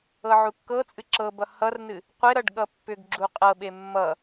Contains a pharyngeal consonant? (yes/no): yes